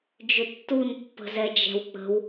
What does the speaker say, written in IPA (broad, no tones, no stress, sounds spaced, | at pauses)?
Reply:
d͡ʒ ʏ tː u n pː ə̤ z ɛ d͡ʒ ɛ̤ w k͡p ə̤ w